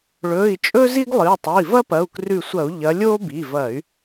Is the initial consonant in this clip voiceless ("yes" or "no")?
no